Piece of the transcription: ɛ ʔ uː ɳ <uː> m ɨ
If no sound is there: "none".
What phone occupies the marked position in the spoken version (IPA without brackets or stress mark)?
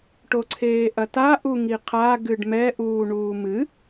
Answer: uː